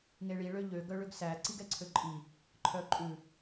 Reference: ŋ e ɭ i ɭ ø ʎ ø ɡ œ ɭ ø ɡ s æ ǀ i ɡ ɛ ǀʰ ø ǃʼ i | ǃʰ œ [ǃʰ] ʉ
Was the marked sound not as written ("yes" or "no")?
yes